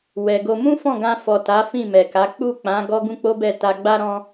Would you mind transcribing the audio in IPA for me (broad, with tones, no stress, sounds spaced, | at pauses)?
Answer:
w ɛ˨ ɡ o˧ m ũ˦ f ɔ̃˦˨ ɡ ã˧ f ɔ˨ t a˨˦ f ĩ˦˨ m ɛ˨ k a˨˦ k͡p u˦˨ k͡p ã˨˦ ɡ ɔ˦ ɡ ũ˦ k͡p o˦ b ɛ˦˨ t a˧ ɡ͡b a˦ ɾ ɔ̃˦